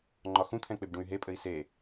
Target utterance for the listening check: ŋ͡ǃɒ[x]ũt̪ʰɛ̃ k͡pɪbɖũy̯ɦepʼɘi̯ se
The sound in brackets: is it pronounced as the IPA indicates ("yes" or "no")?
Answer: yes